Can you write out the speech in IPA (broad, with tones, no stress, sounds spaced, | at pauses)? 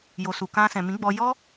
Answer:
j o˨ s u˨ k ã˧ s ɛ̃˨ m ĩ˨˦ ɡ͡b ɔ˧ j ɔ˦